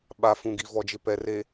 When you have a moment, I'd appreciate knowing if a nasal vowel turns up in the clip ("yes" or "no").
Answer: yes